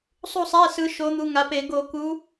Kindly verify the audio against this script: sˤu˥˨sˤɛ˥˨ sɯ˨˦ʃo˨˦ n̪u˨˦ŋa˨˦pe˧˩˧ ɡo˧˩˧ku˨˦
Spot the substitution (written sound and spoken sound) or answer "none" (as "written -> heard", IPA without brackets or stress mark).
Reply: ɛ˥˨ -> ɛ˧˥˧